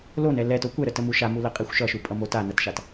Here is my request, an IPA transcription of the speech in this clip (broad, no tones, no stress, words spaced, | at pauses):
lonɛ lɛto kʷɛɾətəmu ʃamuləqʼixʷ ʃʌʃupʼʌmo tanʌtʃat